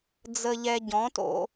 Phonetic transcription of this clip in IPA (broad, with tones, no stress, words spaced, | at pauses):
d͡zə˧ʎɛ˧ ɟɔ̃˨˥to̰˧